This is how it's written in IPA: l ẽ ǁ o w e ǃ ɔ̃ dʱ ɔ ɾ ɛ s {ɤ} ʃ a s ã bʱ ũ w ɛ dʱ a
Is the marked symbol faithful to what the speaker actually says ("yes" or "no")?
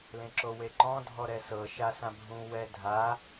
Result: yes